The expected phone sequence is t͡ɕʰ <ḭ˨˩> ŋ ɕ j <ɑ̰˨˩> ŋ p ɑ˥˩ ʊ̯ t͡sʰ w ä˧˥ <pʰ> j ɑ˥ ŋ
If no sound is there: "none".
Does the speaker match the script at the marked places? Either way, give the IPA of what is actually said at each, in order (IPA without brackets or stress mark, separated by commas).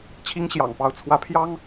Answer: i˥, ɑ̰˨˩, pʰ